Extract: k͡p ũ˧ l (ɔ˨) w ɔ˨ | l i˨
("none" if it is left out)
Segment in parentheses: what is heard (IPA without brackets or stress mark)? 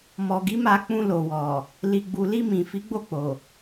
o˨